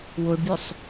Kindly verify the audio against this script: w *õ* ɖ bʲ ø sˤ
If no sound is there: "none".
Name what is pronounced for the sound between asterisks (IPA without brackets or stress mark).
o